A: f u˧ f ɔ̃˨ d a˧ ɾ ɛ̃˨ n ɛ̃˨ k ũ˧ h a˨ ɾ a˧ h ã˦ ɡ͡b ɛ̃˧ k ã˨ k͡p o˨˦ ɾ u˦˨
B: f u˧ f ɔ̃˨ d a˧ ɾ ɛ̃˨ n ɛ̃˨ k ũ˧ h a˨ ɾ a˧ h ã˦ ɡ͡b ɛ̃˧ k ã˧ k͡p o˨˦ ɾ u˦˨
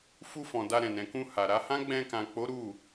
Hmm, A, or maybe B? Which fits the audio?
A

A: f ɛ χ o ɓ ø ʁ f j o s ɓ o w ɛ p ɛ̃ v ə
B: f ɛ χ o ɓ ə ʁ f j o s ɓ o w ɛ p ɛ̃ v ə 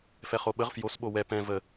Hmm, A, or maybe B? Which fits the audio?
B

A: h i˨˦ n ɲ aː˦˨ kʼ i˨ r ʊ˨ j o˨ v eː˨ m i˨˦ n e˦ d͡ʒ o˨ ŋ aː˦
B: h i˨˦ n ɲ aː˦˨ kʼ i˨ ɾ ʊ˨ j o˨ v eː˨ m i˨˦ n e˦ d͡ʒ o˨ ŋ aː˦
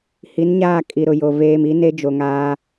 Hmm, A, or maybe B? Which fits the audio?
B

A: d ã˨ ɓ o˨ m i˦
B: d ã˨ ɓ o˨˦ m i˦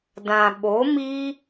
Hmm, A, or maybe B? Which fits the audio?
B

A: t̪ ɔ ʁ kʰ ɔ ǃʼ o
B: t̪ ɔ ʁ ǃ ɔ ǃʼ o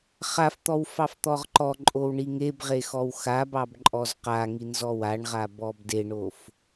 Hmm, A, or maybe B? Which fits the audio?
B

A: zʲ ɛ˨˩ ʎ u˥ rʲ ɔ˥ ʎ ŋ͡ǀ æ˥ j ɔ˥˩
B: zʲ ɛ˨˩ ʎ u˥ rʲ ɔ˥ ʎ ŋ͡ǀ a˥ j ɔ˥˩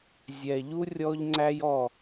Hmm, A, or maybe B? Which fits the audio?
A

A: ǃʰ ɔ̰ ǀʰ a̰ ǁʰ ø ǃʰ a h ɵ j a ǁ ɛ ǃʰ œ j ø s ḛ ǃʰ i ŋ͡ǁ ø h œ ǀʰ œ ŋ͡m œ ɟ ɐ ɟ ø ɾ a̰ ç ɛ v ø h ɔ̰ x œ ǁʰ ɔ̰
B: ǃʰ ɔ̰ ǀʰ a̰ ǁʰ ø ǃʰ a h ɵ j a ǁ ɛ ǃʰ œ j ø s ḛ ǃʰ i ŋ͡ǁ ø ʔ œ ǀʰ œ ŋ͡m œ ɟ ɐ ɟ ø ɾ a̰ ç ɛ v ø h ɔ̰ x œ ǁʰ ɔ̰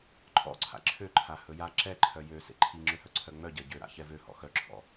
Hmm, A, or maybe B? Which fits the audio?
A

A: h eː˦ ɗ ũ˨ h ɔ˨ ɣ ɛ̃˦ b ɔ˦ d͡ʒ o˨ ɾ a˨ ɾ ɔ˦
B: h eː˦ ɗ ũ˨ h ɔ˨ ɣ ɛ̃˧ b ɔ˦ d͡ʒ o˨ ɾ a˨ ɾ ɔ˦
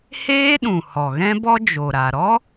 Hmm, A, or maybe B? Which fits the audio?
A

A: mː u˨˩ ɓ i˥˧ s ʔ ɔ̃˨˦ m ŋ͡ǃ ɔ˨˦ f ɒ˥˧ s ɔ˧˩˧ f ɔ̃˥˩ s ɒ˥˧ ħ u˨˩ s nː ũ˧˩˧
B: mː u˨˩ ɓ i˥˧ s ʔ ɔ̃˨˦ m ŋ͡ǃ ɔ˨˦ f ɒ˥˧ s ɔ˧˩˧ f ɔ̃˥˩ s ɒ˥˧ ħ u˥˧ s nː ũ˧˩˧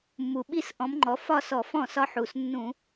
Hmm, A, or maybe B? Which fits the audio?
A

